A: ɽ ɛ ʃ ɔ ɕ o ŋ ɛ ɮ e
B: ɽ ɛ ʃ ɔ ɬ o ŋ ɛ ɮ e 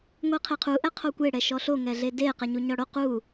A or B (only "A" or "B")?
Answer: B